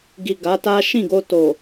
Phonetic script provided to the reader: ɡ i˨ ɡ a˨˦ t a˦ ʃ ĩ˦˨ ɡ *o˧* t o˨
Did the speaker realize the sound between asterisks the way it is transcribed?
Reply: yes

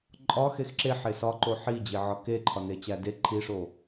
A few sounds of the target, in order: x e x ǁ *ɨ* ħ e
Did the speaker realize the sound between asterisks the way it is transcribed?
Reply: no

